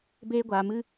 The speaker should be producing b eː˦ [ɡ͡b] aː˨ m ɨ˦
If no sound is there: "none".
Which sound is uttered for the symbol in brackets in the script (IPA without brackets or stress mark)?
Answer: ɡʷ